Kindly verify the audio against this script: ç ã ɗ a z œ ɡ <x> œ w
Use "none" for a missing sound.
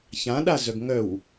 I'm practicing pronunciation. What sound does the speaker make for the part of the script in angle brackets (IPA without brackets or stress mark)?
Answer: ŋ